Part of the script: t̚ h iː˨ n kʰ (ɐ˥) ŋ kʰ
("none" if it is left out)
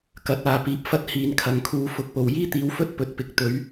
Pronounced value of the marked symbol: ɐ˨˩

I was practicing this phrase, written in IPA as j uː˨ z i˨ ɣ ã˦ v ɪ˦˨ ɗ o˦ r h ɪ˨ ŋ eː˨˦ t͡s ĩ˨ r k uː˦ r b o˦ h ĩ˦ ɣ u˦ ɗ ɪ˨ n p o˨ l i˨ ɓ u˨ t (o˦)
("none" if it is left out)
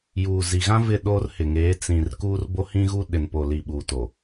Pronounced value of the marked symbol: o˨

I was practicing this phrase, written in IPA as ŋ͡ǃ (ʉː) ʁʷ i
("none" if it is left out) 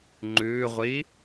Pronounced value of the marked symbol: ʉː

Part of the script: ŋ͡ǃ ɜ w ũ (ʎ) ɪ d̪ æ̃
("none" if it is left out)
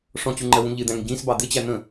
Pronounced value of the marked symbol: ʎ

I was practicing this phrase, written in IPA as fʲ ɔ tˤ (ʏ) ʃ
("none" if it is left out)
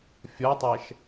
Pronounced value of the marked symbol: ɛ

